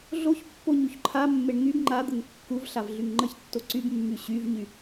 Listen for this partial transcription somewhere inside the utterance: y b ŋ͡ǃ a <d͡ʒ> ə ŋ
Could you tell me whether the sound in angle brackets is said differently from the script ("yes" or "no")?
yes